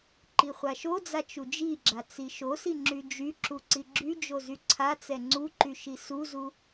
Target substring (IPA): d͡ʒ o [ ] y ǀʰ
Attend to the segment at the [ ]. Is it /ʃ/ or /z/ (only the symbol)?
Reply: z